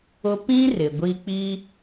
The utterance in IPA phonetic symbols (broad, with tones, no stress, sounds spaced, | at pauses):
ʊ˦ p ĩ˦ r ɪ˨ ɡʷ i˦ k͡p i˦